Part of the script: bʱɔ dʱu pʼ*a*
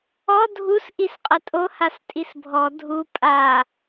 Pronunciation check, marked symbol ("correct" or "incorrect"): correct